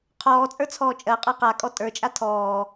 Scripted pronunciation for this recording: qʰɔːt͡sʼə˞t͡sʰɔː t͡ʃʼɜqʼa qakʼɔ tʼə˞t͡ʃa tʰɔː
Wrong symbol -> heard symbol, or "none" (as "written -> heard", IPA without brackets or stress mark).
t͡ʃ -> t͡ʃʼ